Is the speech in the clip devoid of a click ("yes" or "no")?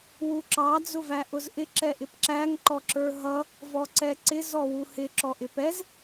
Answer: no